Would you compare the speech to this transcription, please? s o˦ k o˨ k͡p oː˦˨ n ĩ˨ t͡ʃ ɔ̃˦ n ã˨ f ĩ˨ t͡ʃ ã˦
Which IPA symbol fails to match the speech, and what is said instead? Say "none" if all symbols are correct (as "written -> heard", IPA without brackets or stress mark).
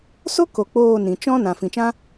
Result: none